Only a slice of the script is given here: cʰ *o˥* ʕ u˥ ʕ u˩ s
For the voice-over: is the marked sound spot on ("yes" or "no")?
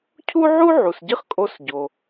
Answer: no